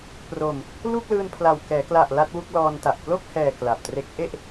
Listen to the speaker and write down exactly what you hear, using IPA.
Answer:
p r o˨˩ m | l u˥˩ k̚ l ɯː˧ n pʰ l a˨˩ w k ɛː˩˦ k l a˨˩ ʔ l a˥˩ t̚ w u˥˩ k̚ l ɔː˧ n t a˨˩ ʔ p l o˥˩ k̚ h ɛː˨˩ k l a˨˩ p̚ t r e˦˥ k̚ ʔ e˥˩ ʔ

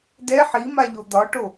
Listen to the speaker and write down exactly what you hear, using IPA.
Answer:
d ɛ ħ i m a ʎ o d̪ ɒ ʈ o

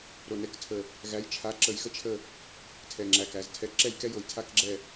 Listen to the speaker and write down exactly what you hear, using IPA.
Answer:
ɾ o˨˩ n ɛ˨˩ k tʰ ə˨˩ | ɣ æ˨˥ j t͡ʃʰ a˨˥ ǁ ə˨˩ j x ə˦ t͡ʃʰ ə˦˨ | tʰ ɛ˨˩ ŋ͡ǁ æ˨˩ k æ˨˩ z tʰ ɛ˨˩ ǁ ɛ˦˨ j k ɛ˦ j o˨˩ j tʰ a˦ k ɡ͡ǁ ɛ˦˨

